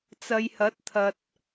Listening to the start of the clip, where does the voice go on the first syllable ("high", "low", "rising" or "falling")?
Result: low